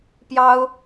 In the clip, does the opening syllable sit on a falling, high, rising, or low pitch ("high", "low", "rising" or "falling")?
high